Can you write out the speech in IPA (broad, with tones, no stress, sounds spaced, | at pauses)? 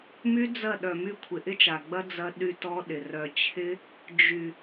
m y˦ d͡z ɐ˦˨ ɗ œ˨ m y˧ kʷʰ ɪ˨ ʔ ɪ˦ t͡ʃ a˨ ɡ͡b ɐ˦ d͡z ɐ˦ ɗ y˧ t ɔ˦ ɗ ɪ˨ r œ˨ t͡ɕʰ ɪ˦ | d͡ʒ y˨